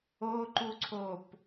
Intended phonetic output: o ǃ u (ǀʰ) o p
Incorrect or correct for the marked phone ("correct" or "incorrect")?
correct